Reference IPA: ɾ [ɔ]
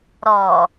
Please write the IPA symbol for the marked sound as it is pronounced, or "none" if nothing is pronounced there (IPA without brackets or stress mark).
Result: ɔ